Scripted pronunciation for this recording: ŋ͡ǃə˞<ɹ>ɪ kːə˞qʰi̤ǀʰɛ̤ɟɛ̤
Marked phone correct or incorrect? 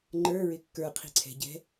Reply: correct